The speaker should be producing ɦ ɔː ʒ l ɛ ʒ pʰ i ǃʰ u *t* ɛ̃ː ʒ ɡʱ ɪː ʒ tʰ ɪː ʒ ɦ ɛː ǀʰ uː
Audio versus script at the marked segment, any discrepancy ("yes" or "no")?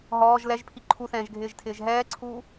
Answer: yes